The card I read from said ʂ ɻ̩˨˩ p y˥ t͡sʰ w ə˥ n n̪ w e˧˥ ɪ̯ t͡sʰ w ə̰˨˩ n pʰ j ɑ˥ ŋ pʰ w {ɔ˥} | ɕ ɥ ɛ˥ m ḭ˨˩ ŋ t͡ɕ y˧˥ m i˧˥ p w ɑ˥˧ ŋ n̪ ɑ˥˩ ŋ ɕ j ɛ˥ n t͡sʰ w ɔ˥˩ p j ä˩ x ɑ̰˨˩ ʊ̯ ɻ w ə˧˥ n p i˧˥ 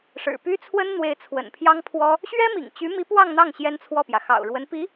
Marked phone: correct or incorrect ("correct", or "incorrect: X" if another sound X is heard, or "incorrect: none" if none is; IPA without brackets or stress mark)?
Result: correct